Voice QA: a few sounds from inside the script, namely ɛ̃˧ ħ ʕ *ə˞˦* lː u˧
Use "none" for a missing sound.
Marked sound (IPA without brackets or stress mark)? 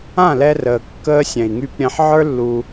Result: ə˞˦